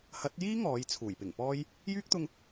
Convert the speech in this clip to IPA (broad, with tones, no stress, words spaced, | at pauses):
hɐ˨˥t̚jiː˥ ŋɔː˨˧jt͡sʰuː˨˩jpɪ˨˩ŋpɔː˥j | jyː˥k̚t̪ʊ˧ŋ